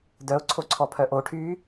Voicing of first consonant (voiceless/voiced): voiced